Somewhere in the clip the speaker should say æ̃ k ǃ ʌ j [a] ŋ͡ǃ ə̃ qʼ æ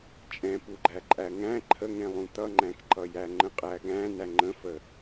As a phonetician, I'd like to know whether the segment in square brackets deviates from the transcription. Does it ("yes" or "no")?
yes